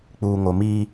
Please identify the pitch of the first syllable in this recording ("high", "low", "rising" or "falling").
low